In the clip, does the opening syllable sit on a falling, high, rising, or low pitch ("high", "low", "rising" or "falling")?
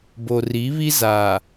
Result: low